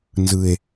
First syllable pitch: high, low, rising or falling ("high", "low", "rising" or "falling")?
low